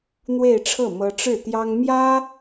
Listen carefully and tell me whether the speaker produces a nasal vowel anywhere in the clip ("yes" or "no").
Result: no